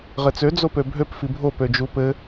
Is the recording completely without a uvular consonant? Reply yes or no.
no